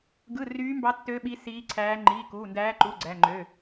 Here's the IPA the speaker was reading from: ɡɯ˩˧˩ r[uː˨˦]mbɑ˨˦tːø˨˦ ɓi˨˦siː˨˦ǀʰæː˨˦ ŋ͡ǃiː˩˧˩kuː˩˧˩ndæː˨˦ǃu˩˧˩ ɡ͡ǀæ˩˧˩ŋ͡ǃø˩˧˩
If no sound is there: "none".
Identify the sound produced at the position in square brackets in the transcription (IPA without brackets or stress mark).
yː˨˦